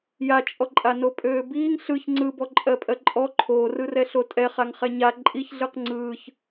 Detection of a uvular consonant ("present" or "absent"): present